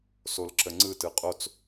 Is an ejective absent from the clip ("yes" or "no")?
no